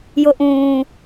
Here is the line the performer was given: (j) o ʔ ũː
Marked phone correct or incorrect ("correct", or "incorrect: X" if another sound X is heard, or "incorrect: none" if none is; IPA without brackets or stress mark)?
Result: correct